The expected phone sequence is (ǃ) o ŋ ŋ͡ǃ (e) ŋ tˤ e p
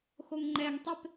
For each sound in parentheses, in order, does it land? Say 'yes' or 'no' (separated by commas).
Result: no, no